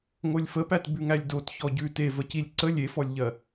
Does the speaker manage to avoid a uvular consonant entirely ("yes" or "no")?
yes